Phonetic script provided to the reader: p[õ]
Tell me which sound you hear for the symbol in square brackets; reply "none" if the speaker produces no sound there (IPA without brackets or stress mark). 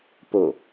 o